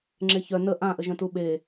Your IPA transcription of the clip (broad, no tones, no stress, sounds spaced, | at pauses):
ŋ͡ǁ e ç œ n ə ʔ ã ʔ ə ʒ œ̃ t u ɓ e